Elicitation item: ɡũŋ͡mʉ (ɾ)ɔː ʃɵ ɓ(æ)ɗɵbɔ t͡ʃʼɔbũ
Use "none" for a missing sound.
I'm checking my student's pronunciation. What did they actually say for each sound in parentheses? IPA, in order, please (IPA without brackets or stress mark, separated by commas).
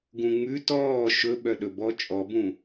t, œ